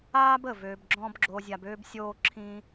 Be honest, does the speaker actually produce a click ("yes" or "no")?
yes